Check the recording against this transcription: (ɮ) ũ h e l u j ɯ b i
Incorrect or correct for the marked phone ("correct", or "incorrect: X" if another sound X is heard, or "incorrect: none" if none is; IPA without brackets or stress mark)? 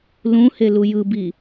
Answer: incorrect: l